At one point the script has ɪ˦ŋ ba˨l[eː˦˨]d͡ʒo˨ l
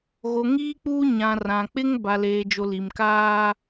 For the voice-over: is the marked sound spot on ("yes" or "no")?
no